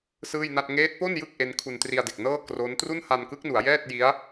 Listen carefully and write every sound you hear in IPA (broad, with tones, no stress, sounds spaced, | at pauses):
s ɯː˥˩ j n a˥˩ t̚ ŋ eː˦˥ t̚ p o˥˩ n j ɯ˥˩ k̚ ʔ e˦˥ n kʰ u˧ n t r i˧ a̯ d e˨˩ k̚ n ɤː˥˩ k r o˦˥ n t r u˥˩ n h a˧ n k ɯ˦˥ k̚ n u˩˦ a̯ j ɛː˥˩ t̚ j i˦˥ a̯